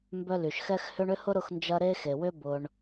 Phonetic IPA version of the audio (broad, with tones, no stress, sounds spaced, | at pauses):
m b œ˦ l y˩ ʃ x ɛ˥ x h ʏ˦ ɳ ʏ˥ h ʊ˥ ɾ ʊ˦ x n d͡ʒ ɐ˦ ɾ e˥ x e˩ w ʏ˥ b ʊ˨ ɳ